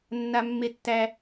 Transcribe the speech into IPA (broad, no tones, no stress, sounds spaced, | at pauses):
nː a mː e tː æ